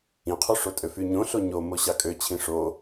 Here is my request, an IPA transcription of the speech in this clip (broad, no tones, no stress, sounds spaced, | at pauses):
ĩ qʰ u ʂ o tʼ ø f y ɲ õ ɬ o ɲ o m o ɕ ɑ kʼ ø t͡ɕʰ ĩ ʂ o